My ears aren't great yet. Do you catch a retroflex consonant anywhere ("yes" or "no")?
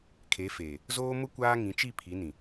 no